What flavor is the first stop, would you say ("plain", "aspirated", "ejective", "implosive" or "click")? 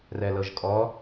ejective